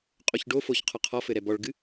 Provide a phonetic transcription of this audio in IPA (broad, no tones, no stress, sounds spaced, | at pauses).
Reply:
qʼ o ç ɖ o f o ç qʰ ɔ qʰ ɔ f ɘ ɾ ɛ b ɔ ɭ ɡ ɨ